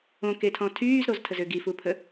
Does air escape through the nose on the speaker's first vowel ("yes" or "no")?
yes